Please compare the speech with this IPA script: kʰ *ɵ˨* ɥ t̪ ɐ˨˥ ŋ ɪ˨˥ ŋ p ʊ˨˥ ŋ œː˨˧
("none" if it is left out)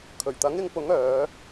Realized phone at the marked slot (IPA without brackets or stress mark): ɵ˨˩